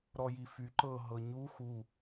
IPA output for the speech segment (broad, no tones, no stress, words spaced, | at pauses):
ɾɔjify ǃɤ ɦɤɲu xu